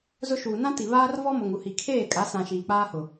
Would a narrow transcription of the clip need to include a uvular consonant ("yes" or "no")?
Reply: no